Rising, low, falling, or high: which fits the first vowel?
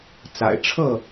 low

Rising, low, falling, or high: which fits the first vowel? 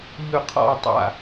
low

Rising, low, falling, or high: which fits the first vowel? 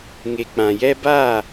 low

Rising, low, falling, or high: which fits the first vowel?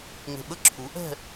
low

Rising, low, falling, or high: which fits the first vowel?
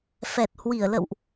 low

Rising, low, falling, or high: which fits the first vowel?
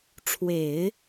low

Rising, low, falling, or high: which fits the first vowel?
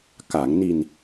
low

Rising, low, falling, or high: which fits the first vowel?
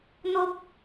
high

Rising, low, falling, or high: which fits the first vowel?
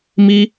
high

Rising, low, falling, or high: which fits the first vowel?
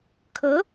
rising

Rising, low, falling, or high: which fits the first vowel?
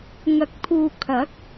rising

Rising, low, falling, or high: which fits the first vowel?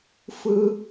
high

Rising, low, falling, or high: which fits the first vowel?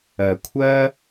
low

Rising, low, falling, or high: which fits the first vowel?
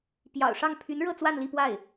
low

